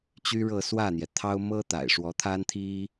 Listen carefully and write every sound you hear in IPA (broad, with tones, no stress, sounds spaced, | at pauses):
t͡ɕ y˥ ɻ ɤ˥˧ s w ä˥˩ n̪ j ɛ˩ t̪ʰ ɑ˥ ʊ̯ m ɤ˥ t̪ a̰˨˩ ɪ̯ ʂ w ɔ˧˥ t̪ʰ a˥ n t̪ʰ i˥